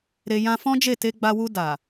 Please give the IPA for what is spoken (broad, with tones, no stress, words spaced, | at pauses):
ɾe˧ jã˧fɔ̃˦d͡ʒe˦˨ te˧ɡ͡ba˧wu˧ da˨